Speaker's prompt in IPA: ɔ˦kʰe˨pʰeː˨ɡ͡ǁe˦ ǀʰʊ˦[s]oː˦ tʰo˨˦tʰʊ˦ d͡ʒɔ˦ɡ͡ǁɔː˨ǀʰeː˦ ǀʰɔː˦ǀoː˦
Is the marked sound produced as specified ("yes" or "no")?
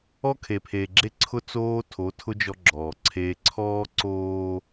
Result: no